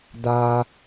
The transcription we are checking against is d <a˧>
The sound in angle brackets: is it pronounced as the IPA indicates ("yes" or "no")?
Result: yes